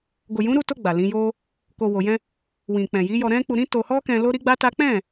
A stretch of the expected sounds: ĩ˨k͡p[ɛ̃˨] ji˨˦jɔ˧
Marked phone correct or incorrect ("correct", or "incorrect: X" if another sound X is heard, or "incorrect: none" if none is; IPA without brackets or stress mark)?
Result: correct